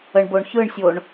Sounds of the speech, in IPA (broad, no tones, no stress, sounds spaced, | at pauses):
ə ɳ b o ɳ ç ɯ ɳ sʲ o ɳ